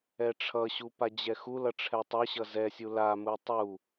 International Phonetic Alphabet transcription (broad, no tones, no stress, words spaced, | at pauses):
ɛʈ͡ʂʰʌɕu pad͡ʑɛxulʌ ʈ͡ʂʰɛtˤʌɕʌ zɛsʲu lamu tˤu